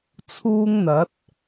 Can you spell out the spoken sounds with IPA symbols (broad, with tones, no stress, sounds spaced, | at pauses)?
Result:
t͡sʰ uː˥ ŋ n̪ ɐ˨˥ t̚